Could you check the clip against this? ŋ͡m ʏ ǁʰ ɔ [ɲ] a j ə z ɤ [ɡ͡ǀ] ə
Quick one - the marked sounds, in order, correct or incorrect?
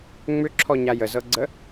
correct, correct

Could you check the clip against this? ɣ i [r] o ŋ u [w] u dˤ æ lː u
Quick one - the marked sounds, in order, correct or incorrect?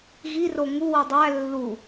correct, correct

